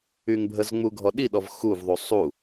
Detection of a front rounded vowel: present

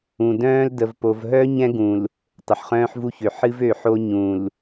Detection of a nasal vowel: present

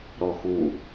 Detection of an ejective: absent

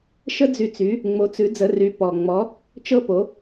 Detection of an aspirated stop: absent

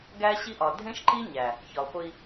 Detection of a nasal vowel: present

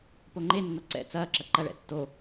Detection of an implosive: absent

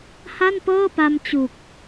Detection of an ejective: absent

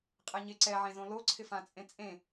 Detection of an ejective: present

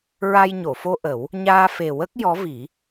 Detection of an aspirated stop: absent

